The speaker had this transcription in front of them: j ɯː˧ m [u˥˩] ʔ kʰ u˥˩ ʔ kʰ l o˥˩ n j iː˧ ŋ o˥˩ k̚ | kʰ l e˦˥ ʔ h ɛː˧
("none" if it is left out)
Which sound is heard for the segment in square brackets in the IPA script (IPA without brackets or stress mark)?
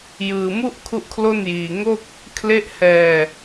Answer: u˥˩